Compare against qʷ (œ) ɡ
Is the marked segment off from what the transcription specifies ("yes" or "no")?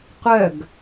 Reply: no